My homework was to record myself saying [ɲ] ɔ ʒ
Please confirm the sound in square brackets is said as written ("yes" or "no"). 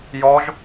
no